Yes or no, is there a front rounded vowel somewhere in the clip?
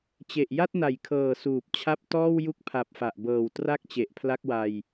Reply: no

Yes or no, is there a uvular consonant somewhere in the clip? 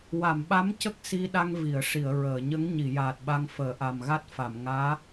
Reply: no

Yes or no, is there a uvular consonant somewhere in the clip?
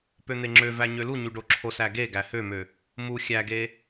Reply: no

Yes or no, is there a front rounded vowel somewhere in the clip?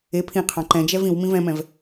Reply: no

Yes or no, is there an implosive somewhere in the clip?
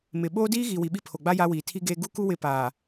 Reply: yes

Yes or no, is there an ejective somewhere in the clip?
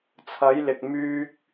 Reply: no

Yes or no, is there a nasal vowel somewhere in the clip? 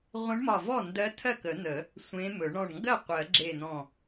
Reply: yes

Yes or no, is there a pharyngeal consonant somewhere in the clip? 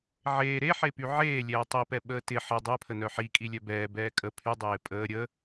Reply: yes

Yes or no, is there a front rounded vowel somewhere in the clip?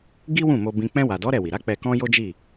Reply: no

